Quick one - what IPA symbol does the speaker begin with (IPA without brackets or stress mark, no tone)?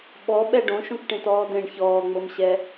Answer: ɓ